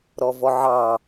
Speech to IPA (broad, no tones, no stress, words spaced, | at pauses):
ɾɔvɔʕɑ